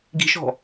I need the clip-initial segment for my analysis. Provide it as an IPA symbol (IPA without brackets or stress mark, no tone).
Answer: ɡ